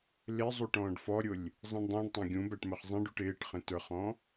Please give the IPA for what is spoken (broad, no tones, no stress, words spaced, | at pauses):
lɪ zˤuʈɔ̃ːɖfɔɾʲʊlʲ | zˤĩɳdˤũːɖtˤæ̃ ɡʲũbæʈ məχzˤĩɖuʈ ɪːʈχə̃ tə˞χɔ̃